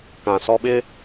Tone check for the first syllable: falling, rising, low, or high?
low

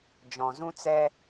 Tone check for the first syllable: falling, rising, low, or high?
low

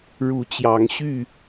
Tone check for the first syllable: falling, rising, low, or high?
rising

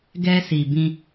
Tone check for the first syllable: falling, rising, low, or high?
high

